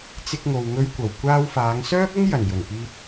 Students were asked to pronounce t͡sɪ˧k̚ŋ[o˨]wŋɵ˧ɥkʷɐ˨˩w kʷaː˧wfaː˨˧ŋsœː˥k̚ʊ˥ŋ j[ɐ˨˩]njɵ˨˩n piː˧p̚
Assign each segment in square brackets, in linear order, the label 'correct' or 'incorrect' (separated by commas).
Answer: correct, correct